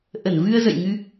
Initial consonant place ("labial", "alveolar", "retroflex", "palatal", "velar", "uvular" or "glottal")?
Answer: glottal